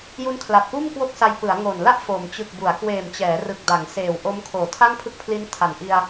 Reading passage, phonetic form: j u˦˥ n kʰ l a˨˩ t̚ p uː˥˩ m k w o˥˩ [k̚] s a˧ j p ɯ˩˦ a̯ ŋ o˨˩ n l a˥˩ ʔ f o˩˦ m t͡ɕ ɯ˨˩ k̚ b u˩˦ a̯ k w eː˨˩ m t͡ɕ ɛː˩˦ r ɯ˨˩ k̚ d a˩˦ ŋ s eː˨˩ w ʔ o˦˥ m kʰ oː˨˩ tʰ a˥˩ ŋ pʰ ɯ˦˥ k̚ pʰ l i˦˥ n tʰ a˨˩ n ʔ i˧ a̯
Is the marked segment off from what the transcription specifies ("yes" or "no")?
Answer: no